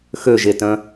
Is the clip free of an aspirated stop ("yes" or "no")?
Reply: yes